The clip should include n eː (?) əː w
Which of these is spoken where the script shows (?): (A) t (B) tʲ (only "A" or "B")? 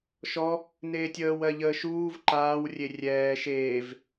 B